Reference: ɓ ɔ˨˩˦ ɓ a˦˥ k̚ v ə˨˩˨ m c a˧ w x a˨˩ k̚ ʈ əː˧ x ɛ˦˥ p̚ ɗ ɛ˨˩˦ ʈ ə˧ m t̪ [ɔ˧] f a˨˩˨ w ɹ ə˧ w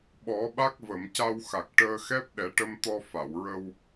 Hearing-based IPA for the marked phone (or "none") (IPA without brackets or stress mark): ɔ˧